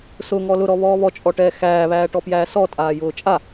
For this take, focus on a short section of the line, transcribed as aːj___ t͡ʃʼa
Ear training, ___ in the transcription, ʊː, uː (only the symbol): ʊː